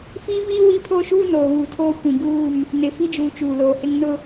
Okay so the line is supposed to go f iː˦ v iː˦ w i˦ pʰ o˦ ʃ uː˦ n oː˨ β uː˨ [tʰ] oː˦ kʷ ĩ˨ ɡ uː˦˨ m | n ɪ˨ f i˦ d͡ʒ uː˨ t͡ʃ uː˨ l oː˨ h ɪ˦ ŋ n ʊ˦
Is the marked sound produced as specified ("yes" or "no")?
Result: yes